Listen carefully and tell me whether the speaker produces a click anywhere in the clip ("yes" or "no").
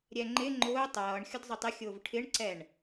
yes